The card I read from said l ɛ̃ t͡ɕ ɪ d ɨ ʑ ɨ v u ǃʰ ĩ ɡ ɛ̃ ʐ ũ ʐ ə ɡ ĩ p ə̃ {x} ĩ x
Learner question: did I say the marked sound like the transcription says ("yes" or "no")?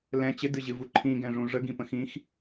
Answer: yes